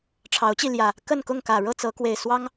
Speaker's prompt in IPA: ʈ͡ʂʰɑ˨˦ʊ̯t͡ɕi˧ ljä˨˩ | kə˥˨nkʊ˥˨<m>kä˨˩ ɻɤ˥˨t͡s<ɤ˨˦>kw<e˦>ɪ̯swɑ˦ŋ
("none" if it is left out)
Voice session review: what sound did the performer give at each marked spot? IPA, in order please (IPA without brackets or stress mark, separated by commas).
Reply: ŋ, ɤ˨˦, e˨˩